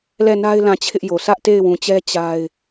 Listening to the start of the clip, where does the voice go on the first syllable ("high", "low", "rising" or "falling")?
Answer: falling